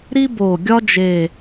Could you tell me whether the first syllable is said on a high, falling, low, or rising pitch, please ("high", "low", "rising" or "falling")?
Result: high